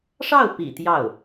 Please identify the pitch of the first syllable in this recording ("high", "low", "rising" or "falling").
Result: falling